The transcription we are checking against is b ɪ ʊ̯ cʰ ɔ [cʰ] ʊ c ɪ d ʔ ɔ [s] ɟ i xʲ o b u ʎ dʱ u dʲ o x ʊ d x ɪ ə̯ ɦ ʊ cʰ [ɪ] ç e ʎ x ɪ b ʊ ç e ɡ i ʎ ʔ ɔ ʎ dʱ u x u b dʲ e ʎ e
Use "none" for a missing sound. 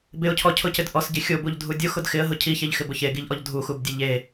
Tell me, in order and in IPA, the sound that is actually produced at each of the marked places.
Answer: cʰ, s, i

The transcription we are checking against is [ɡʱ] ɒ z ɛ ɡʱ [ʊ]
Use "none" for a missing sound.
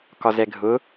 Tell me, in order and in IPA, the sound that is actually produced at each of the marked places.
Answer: k, ʊ

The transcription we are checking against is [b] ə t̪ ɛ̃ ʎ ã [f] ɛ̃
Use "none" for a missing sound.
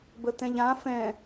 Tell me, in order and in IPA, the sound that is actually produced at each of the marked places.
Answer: b, f

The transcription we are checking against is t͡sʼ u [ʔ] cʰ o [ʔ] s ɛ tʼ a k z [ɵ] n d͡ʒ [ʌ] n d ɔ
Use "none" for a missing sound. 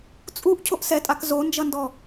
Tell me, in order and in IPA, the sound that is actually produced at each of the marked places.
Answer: ʔ, ʔ, o, ʌ

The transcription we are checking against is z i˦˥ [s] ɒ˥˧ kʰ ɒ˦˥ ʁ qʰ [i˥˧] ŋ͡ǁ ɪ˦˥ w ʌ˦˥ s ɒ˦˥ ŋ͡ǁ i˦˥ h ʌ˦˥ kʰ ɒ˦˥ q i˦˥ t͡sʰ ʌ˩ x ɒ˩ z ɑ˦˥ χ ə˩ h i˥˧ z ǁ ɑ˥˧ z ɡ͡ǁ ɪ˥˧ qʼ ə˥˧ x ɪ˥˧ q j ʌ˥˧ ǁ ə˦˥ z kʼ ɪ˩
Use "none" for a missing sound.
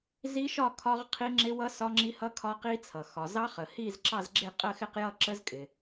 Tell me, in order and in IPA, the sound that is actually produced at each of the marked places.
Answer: ʃ, i˦˥

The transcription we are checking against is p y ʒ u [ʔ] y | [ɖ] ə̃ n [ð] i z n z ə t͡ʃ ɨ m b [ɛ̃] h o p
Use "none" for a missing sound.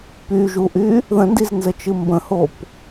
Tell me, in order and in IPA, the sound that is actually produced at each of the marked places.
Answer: ʔ, ð, d, ə̃

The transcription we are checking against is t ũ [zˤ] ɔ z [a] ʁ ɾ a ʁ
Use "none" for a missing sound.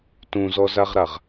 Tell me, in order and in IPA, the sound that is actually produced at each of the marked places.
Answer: z, a

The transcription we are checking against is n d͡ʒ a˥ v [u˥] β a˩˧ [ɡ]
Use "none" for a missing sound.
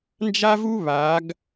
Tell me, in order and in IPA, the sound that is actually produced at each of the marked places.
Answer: u˥, ɡ

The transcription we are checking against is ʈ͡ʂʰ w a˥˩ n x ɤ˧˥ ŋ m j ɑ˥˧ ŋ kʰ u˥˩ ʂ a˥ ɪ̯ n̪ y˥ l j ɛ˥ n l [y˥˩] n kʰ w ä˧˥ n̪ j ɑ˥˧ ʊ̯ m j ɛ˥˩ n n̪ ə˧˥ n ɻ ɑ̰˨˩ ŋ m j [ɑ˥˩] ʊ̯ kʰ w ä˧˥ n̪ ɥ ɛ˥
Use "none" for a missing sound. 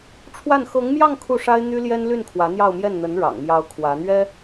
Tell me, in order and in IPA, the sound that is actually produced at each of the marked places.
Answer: y˥˩, ɑ˧˥

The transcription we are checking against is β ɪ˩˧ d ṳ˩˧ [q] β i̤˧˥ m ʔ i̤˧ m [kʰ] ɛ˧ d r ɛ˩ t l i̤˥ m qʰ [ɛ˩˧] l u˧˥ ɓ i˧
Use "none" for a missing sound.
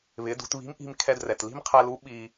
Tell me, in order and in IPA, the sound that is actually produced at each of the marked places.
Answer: t, kʰ, ɛ˧

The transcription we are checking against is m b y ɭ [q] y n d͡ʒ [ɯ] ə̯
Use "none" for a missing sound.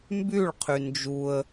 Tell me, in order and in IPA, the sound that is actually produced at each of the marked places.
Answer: qʰ, u

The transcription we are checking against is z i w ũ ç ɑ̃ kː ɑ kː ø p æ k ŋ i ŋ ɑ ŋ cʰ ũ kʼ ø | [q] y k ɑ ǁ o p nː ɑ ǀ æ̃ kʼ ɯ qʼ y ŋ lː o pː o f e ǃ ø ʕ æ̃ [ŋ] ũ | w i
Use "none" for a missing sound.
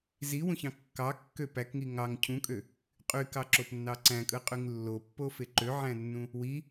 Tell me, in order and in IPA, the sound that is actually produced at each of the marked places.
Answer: qʼ, nː

